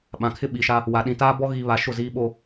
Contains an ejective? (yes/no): no